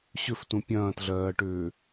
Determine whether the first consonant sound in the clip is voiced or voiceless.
voiceless